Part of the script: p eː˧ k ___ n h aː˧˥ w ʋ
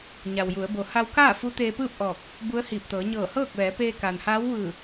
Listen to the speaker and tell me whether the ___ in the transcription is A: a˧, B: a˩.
B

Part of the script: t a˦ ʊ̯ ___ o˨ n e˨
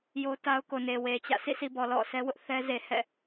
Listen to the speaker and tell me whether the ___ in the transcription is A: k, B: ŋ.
A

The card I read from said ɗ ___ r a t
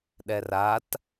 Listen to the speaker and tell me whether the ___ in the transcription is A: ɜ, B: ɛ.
B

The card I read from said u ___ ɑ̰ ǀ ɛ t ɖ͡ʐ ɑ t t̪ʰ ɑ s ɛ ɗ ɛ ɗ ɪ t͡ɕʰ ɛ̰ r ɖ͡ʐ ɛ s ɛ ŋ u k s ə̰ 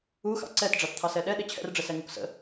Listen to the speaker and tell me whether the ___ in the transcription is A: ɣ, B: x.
B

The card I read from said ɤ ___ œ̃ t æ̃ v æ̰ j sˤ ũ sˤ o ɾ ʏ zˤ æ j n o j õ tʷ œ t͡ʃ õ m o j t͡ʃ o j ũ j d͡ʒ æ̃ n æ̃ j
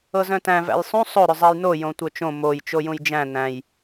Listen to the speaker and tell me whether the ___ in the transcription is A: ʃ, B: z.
B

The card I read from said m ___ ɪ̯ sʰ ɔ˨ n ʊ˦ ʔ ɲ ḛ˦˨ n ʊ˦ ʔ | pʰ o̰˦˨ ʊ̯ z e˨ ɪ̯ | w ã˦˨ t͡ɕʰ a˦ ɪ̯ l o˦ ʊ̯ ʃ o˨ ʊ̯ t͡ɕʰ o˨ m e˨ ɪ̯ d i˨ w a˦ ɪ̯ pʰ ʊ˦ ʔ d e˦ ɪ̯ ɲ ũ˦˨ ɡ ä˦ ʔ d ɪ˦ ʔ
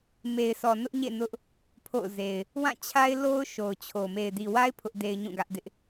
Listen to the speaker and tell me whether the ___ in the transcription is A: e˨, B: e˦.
A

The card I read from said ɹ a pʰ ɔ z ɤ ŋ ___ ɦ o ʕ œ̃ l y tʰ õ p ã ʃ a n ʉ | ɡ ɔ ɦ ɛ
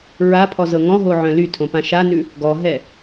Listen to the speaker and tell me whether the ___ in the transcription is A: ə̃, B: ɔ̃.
B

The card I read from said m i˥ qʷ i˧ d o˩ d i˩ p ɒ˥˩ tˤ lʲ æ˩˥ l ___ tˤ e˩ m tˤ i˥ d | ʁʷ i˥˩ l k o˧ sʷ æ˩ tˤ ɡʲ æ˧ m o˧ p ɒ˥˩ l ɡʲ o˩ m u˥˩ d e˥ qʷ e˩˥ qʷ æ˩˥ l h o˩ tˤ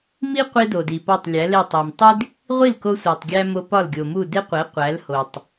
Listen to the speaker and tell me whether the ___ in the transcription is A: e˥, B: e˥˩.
B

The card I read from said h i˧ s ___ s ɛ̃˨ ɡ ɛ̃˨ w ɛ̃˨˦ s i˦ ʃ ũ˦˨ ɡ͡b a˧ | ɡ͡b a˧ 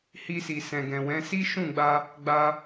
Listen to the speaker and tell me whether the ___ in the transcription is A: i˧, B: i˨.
B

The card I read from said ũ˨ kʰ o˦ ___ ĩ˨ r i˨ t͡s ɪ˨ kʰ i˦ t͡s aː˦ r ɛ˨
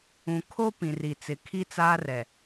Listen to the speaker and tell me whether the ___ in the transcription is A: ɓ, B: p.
B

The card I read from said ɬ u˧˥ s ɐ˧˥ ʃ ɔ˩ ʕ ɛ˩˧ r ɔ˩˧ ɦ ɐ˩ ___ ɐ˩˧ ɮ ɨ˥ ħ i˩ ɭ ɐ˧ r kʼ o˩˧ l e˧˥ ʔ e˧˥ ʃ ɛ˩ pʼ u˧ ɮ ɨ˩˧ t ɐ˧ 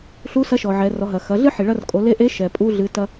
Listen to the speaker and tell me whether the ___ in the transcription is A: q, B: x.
B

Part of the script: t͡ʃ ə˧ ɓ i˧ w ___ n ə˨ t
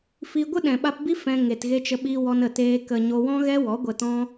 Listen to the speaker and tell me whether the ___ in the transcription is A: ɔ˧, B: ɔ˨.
A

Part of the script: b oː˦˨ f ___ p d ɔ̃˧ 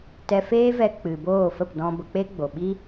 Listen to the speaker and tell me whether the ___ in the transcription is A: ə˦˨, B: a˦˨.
A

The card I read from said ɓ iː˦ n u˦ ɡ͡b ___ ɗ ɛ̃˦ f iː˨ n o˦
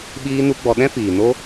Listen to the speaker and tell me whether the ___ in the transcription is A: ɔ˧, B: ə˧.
A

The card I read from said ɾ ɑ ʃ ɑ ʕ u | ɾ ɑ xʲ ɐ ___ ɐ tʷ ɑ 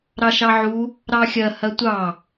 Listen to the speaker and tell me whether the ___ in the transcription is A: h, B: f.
A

